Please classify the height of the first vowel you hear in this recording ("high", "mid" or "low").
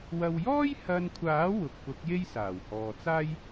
low